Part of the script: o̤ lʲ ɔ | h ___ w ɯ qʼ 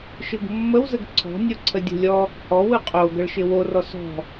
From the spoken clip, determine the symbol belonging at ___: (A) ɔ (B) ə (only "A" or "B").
A